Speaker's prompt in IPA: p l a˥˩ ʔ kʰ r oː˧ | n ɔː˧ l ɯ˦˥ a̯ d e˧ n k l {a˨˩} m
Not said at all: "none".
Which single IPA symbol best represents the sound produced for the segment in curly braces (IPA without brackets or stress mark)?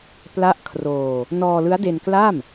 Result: a˥˩